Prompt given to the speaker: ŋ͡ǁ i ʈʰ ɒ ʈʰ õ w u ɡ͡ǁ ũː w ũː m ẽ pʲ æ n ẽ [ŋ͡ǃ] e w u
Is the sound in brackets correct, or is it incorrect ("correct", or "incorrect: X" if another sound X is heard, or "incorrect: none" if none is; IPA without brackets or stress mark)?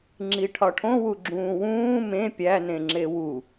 incorrect: ŋ͡ǁ